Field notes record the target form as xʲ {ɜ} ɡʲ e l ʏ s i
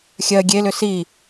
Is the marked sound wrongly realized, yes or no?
no